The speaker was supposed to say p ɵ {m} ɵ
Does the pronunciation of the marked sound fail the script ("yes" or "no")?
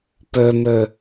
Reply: no